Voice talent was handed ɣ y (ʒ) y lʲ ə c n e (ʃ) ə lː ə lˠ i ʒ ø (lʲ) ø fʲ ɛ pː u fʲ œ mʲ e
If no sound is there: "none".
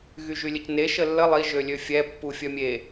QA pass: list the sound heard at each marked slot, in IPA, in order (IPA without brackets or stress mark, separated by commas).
ʒ, ʃ, lʲ